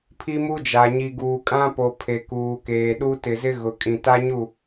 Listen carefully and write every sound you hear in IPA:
pʰi˦mu˦d͡ʒa˨ ɲi˨ɡuː˨kʼã˦po˨ pʰe˨kuː˨keː˨ɗu˦ tɪ˨zɪ˦ ɣʊ˨kʼĩ˨ ta˦ɲu˦˨

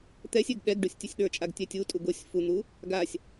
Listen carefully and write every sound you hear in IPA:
t̪ɛsʲɛɡ ɗɛɡɖusʲ tʲə˞sʲɗə˞t͡ʃʼaɡ tʲɛtʲutʼu ɡosʲ fun̪u | ɡasʲ

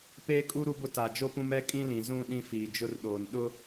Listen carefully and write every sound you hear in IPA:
peː˦kʼu˦ ɾu˦bʊ˦ ta˨d͡ʒo˦pũ˦m ɛ˦kʼĩ˦lĩ˨ zũ˦˨ ɗĩ˦fiː˨d͡ʒʊ˦rɗoː˨n ɗʊ˦

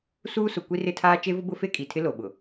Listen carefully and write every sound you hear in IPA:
suː˦sʊ˨ kʷi˦rɪ˦tʰaː˦ t͡ʃe˦vʊ˦ bʊ˦fe˦ kʼi˨tʰɪ˦lo˨ɓʊ˨

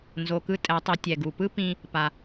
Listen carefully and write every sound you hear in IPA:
nzo˩kɯ˧ tʼɛ˩˧tˤi˩˧ tʲɛ˩ɡu˩pɯ˥ pĩ˧ | pa˩

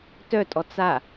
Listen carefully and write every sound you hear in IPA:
tœtʼɔ t͡sa

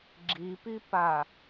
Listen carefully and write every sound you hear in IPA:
ɡ͡ǁipipa

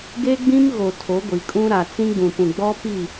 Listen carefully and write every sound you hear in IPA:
ɡe˦ɡ͡bĩ˦m ɣo˨tʰo˨˦ ɡʷi˨kʼũ˦ ɾa˨t͡sĩ˦ɡ͡bũ˨pũ˨ ɡ͡bɔ˦pi˦˨

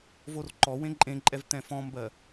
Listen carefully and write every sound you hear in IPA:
vorǃɔ wẽǃʼẽǃʼɛv t̪ɛ̃fɔ̃mbɜ

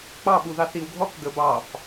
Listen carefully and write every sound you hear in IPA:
k͡pɑ ɓuðɑθiwɡʱɔk ɡəbɑf

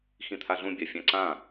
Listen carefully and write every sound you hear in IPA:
xĩt̪ʰaɮũ bʲafʲãǀã

